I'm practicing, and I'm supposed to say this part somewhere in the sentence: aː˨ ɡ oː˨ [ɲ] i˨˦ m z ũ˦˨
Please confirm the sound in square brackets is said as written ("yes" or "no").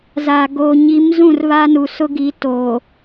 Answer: yes